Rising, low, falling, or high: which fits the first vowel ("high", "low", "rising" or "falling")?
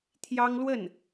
high